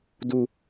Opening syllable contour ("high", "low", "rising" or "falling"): high